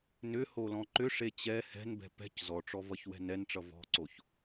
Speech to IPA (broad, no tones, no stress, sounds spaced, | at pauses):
n ʏ h o l ɔ̃ ǃ ʏ ʂ e t͡ɕ ɛ h ɛ̤ n b ɛ̤ p ɛ̤ c z ɔ ʈ͡ʂ ɔ v ʌ ç w ɛ̤ n ɛ n ʈ͡ʂ ʌ v ɔ̤ ǀ o ç